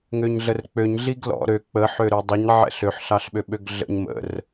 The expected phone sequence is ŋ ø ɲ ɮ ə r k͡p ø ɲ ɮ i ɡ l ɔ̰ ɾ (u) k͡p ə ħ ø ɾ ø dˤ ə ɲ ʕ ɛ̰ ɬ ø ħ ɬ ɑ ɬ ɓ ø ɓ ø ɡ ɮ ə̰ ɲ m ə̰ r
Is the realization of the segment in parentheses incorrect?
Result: yes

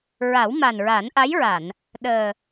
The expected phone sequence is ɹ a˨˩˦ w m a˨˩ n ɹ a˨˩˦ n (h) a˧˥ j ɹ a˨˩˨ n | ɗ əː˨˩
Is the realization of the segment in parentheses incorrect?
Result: yes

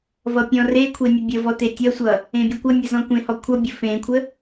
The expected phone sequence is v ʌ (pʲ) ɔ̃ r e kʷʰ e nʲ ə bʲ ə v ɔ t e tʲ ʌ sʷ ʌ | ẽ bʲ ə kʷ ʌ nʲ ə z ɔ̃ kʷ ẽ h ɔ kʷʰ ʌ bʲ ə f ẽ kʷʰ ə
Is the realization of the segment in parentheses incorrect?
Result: no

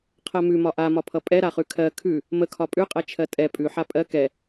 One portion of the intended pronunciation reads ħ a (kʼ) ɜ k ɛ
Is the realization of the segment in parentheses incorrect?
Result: yes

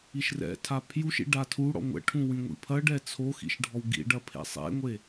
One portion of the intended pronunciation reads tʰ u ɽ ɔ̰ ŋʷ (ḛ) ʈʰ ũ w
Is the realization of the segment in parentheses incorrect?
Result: yes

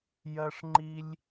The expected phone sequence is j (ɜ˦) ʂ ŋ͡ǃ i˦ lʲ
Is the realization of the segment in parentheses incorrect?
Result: no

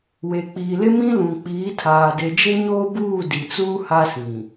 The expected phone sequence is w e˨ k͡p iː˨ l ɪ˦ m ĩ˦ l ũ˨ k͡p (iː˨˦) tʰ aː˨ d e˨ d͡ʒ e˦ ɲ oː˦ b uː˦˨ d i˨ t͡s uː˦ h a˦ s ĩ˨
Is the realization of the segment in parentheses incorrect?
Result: no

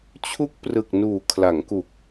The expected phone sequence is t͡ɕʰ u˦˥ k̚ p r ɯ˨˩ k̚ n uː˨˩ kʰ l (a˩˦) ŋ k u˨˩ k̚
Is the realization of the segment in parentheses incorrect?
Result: no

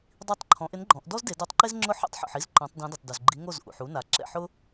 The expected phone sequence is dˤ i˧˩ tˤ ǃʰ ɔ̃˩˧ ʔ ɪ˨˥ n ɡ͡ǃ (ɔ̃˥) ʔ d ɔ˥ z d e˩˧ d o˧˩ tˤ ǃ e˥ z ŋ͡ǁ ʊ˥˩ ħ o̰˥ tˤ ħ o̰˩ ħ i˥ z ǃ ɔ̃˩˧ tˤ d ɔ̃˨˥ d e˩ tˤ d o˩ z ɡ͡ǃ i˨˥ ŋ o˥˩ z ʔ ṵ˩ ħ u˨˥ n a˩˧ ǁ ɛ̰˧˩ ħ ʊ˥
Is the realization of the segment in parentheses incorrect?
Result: yes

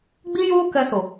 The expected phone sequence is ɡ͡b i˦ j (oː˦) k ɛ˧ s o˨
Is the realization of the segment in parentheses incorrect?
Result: no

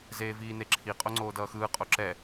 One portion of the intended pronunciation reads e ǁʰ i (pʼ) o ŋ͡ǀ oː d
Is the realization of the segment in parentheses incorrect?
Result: yes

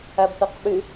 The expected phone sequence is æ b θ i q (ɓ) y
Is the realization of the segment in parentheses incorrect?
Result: no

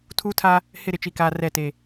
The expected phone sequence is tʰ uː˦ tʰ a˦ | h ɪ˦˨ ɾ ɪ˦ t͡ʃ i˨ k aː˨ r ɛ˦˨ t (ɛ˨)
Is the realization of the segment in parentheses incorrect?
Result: yes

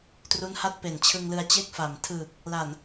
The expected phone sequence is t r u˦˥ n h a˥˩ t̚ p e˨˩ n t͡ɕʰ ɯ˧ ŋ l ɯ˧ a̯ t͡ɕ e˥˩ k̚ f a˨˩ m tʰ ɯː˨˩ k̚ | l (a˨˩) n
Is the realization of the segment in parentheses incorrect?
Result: no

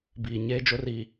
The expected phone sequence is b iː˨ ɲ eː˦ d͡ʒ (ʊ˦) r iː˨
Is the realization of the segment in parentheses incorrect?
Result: no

